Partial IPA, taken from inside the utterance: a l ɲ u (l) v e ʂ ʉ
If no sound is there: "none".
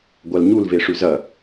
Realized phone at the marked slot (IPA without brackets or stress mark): l